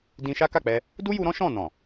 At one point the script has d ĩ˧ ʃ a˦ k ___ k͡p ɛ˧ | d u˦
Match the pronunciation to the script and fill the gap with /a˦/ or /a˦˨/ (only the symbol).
a˦˨